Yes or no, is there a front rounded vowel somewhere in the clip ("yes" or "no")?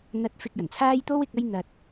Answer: no